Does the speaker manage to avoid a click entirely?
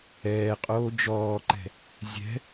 no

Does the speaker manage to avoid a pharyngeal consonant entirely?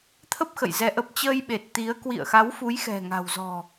yes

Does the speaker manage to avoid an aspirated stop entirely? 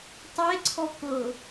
no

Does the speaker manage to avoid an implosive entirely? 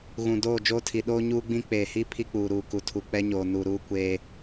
no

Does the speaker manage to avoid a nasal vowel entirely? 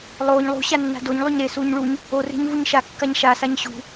yes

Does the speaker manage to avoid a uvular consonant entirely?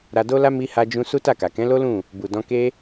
yes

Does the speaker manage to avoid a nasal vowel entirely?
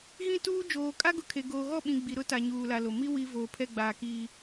no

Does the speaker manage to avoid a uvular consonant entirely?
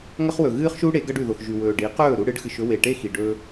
no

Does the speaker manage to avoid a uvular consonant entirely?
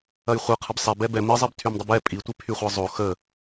no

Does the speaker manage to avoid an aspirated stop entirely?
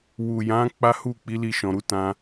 yes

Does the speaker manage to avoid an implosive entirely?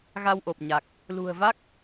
yes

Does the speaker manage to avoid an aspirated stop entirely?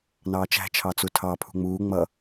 no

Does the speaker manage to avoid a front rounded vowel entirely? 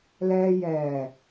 yes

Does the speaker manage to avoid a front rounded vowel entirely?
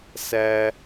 yes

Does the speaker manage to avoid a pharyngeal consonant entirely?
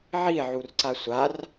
no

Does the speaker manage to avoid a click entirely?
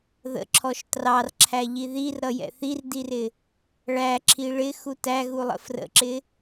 no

